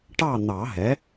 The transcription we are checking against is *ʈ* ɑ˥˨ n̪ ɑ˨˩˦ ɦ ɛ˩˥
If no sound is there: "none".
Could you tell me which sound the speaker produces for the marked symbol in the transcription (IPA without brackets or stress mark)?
ʈ